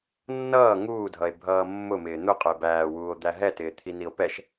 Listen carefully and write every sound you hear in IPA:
nː ʌː ŋ uː dʱ ʌ e̯ bʱ ʌː mː ʊ m ɪː n̪ ʊ qʼ ʊ e̯ b æː w uː o̯ d̪ æ ɦ ɛ t ɪː t̪ʰ i n i o̯ p ɛ ʃ

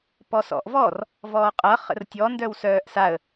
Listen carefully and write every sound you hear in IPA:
p ɔ s ɔ̰ ʔ v ɔ r | v ɔː qʼ ʌ χ ə̰ r tʲ ɔ n d œ w s œː ʔ s a ə̯

